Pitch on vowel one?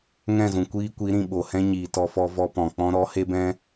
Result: falling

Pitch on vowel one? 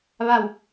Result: falling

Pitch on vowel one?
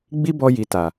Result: high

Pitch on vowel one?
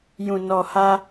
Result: low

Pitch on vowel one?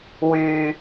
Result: low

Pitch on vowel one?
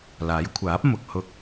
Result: rising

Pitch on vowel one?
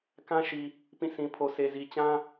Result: high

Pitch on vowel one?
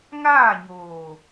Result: falling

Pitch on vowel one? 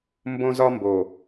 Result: high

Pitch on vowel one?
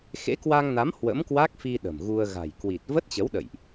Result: rising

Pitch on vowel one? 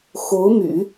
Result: rising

